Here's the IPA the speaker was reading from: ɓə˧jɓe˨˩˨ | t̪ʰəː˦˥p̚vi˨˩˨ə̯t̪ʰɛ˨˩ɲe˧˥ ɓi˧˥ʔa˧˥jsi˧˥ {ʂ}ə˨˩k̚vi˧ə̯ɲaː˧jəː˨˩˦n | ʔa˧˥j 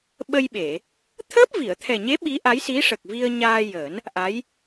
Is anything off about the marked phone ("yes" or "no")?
no